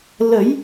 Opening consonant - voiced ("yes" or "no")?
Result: yes